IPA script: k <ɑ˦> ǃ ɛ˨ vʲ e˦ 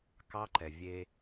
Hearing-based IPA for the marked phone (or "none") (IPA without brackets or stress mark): ɑ˦